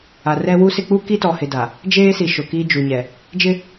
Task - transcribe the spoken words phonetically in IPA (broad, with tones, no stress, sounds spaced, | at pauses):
a˨ r ɛ˦ w u˦ s ɪ˦ k͡p u˦ k i˦ t ɔ˨ h ɪ˨ d a˨ | d͡ʒ eː˦ s i˨ ʃ ʊ˨ k i˦ d͡ʒ u˨ ɲ ɛ˨ | d͡ʒ ɪ˦